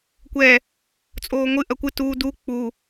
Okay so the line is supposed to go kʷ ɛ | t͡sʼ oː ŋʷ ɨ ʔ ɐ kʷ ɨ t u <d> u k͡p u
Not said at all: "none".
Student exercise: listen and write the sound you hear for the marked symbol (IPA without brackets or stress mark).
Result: d